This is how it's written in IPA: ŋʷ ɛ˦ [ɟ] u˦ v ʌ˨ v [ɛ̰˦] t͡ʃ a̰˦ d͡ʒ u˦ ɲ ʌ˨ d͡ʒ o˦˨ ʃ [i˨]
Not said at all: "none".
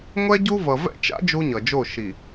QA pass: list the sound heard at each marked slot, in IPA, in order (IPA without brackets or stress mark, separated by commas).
ɟ, ɛ̰˦, i˨